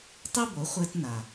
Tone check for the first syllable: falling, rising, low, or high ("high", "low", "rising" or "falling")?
high